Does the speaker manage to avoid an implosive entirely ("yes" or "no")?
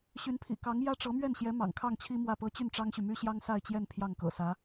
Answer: yes